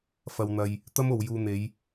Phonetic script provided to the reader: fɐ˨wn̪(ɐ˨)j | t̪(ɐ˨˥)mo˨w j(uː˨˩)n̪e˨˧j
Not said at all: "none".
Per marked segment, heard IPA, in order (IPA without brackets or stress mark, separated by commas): ɐ˨, ɐ˥, uː˨